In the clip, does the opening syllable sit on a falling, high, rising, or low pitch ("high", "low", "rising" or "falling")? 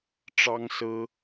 high